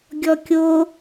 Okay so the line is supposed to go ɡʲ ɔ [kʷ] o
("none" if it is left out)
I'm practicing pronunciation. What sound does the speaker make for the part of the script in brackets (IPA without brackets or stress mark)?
kʲ